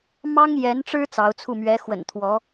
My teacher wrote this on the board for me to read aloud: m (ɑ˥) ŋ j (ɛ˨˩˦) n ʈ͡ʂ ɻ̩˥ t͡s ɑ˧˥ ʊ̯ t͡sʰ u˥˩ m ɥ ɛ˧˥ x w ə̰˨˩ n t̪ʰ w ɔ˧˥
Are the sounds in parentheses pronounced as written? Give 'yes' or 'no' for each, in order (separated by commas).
yes, no